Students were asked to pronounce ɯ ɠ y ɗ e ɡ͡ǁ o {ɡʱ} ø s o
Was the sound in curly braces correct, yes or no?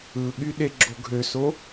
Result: yes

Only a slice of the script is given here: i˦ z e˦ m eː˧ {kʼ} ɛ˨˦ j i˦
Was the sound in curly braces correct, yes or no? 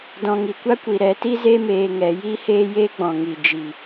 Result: no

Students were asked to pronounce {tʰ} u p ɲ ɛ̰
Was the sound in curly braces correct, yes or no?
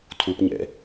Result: yes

